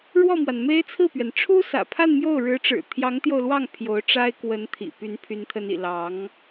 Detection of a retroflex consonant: present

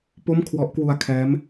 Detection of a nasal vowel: absent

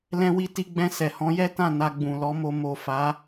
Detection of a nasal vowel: present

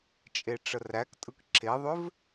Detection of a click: present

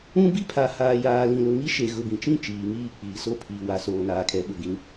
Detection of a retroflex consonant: absent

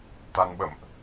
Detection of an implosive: present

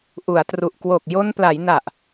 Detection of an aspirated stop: absent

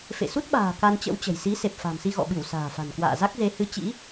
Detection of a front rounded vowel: absent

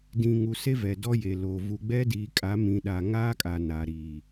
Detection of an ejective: present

